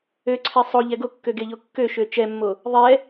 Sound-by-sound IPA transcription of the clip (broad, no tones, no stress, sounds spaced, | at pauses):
ø ǀʰ ɛ sˤ o ʎ ɛ ɡ o kː ø ɡ e ʎ o kː ø ʃ ø t͡ʃ ɛ mː o | ðˤ ɛ